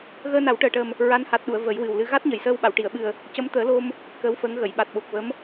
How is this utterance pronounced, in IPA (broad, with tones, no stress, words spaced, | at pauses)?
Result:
ɣəː˧na˨˩˦wʈəː˨˩ʈəː˨˩m | ɹa˧˥nha˨˩t̚ɗu˨˩˨ə̯ və˨˩˦jwɨ˨˩w lɨ˧ ɣa˦˥t̚ɲə˨˩jsəː˧w ɓa˨˩˨wʈi˨˩˨ə̯ ɓɨ˨˩ə̯ | cə˧˥mt̪əː˨˩˦lo˧m | kəː˧˥wfəː˧˥ŋɣə˨˩˨j ɓa˨˩t̚ɓo˨˩k̚və˧˥m